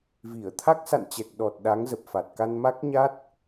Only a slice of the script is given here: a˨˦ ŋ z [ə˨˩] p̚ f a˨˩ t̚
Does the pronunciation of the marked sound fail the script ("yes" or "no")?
no